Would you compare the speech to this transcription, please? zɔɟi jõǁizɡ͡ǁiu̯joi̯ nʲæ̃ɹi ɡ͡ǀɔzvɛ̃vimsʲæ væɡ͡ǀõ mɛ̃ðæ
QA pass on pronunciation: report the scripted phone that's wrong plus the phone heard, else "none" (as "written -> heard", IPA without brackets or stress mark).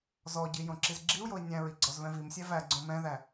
none